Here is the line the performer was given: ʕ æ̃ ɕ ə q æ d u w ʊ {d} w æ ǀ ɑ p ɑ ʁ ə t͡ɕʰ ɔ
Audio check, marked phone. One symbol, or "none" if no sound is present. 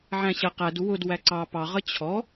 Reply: d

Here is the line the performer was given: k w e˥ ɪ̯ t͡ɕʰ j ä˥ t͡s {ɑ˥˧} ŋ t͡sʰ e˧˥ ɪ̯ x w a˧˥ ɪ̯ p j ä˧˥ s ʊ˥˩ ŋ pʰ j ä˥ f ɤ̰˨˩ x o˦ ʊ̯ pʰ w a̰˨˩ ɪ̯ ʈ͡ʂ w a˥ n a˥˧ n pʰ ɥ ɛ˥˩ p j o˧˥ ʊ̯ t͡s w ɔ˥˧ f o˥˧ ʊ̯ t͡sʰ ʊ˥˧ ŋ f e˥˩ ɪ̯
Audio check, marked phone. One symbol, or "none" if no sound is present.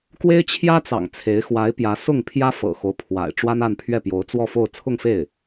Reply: ɑ̰˨˩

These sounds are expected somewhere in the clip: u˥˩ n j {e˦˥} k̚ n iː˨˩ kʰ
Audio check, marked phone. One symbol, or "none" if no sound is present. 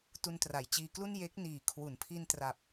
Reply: e˦˥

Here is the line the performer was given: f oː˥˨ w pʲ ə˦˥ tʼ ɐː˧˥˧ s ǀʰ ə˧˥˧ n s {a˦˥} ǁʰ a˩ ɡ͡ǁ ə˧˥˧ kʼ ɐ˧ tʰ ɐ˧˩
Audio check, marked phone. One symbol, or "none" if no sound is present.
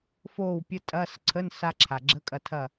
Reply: a˦˥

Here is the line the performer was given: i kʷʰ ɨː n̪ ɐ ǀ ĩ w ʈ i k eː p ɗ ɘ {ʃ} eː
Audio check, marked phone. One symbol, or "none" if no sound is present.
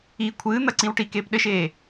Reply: ʃ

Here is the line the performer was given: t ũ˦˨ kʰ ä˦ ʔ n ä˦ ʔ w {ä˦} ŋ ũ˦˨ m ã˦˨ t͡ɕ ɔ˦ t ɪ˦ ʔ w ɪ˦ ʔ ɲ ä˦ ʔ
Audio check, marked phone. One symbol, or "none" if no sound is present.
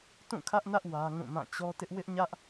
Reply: ä˦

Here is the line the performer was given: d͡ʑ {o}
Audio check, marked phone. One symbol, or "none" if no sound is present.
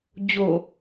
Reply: o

